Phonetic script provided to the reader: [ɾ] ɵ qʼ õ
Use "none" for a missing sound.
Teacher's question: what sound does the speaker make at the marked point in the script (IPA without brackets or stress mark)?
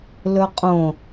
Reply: l